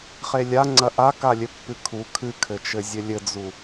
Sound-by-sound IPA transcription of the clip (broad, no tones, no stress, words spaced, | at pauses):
χelʲaŋ͡ǀɐ ʔakalʲɘpːɨ kʰu kʰɨkʰɘt͡ʃɘ zʲɘlʲɘd͡zu